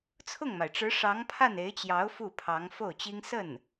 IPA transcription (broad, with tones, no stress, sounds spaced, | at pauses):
t͡sʰ ʊ˥˩ ŋ m a˩ ɪ̯ ʈ͡ʂ ɻ̩˧˥ ʂ ɑ˧˥ ŋ pʰ a˥˩ n e˧˥ ɪ̯ t͡ɕ j ɑ˧˥ ʊ̯ f u˥˩ pʰ ɑ˧˥ ŋ f o˥˩ ʊ̯ t͡ɕ i˥ ŋ s ə˥˩ n